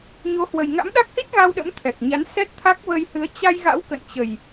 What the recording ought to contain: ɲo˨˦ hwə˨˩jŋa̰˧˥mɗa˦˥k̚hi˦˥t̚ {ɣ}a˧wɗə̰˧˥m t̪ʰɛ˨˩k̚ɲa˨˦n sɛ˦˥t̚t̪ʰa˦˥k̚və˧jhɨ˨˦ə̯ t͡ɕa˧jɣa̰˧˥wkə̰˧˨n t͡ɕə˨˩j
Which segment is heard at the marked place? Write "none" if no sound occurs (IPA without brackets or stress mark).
ɣ